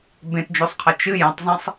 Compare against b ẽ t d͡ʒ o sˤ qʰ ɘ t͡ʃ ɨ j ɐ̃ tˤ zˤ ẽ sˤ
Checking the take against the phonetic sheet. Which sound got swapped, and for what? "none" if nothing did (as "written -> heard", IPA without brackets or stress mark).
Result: none